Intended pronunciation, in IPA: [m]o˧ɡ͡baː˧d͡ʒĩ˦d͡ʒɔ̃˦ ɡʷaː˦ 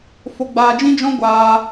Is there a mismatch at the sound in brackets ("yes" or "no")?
yes